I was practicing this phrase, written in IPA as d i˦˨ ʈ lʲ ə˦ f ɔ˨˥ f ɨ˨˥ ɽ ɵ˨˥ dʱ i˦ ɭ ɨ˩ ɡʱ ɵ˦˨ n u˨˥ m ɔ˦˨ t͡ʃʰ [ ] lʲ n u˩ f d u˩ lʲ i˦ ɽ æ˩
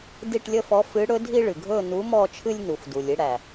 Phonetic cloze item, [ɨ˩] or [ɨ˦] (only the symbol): ɨ˦